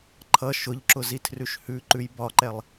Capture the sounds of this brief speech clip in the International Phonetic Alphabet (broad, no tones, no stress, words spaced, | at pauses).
ǃʰʌ ʃʊʎǁʊ zitʰrʉʃhʉǃʉj bɒǃɛlˠ